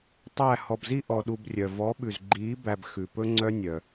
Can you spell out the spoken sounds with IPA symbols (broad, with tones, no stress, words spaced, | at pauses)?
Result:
tˤæ˦˨ hɔ˨bzi˧ ʔɔ˧ɗu˧brʲœ˨ vɔ˨˦ɓʉ˨zɡ͡ǃiː˨˦ bæ˨b xʉ˨pɵ˦ŋ͡ǀœ˦nʲœ˨